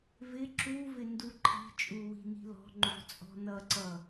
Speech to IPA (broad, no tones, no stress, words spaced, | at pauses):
vɪ ǁu vɪnduǃʰi̤t͡ʃʼu wi̤ni̤lɔ̤ŋ͡ǃṳ t͡sʼɔ̤nʌǀʌ